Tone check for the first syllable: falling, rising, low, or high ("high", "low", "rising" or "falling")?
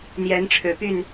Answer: rising